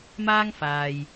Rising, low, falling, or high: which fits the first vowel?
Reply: high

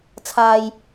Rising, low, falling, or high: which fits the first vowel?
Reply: high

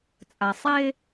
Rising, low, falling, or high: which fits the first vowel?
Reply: low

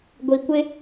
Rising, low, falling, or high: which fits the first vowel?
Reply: low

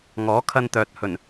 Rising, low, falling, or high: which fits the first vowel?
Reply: rising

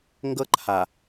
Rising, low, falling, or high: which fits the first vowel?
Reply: high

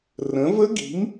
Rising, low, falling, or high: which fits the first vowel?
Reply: rising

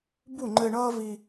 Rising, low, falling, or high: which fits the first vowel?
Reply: falling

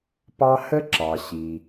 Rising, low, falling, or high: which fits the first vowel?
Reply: high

